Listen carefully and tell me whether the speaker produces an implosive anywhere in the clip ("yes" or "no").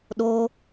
yes